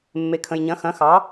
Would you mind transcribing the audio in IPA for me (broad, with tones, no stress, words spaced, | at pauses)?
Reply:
mːe˩kʰə̃˩jɲɐ̃˩˧xɐ̃˩˧ xɑ˩˧